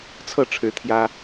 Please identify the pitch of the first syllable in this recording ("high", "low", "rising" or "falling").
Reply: falling